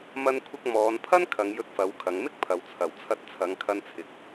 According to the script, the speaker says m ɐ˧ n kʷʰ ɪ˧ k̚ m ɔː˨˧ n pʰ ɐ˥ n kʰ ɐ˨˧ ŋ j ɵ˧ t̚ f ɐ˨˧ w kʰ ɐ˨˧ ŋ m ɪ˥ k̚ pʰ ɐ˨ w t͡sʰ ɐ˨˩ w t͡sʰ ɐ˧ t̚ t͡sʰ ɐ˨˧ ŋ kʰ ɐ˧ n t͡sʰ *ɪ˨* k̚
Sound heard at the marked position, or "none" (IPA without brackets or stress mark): ɪ˨